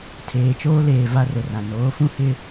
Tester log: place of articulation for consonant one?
alveolar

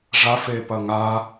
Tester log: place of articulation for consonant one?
retroflex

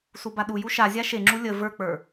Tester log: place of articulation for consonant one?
alveolar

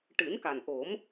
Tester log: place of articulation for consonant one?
retroflex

